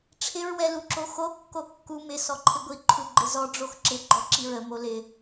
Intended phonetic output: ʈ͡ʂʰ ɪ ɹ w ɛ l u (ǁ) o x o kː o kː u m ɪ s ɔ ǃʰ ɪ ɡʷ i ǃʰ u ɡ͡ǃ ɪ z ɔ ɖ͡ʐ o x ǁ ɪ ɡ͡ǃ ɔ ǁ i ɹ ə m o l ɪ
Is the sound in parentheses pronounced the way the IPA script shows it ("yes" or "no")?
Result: yes